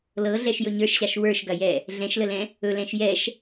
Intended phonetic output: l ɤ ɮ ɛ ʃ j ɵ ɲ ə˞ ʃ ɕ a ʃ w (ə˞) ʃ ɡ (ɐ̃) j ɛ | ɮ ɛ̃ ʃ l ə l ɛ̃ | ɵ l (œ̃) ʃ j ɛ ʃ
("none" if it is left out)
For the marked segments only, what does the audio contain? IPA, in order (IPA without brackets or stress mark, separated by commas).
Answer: ə˞, ɐ, ɛ̃